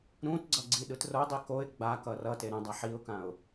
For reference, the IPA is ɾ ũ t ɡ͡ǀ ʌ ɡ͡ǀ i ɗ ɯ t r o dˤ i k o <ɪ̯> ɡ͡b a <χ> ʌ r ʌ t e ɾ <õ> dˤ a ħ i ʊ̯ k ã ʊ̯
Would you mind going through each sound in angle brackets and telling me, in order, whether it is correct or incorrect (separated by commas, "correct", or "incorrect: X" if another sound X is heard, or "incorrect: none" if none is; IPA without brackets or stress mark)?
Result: correct, incorrect: k, incorrect: ũ